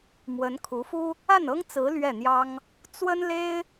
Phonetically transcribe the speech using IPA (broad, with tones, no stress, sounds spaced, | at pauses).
m w ə˧˥ n kʰ u˧˥ f u˥ | a˥˩ n ɤ˥ ŋ t͡s ɹ̩˧˥ l ɥ ɛ˥˩ n̪ j ɑ˥ ŋ | t͡s w ə˥ n l e˥ ɪ̯